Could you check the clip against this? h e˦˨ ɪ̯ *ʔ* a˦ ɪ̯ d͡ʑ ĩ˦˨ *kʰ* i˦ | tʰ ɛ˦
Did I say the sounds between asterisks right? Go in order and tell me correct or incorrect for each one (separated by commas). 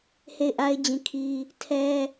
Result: correct, correct